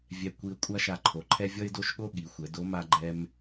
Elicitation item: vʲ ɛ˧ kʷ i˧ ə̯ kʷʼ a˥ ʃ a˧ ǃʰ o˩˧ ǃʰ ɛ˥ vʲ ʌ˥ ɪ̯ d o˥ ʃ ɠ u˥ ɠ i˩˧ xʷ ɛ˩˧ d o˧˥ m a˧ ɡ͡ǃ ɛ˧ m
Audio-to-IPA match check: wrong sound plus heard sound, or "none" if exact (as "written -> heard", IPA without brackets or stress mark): u˥ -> o˥